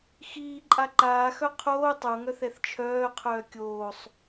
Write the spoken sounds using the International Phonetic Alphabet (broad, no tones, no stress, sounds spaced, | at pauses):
x iː ǃʼ a ǃ aː x œ qʰ oː tˤ o ŋ œ θ ɛ θ t͡ʃʰ œː qʰ œː kʲ oː sˤ